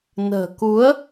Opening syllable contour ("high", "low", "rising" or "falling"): low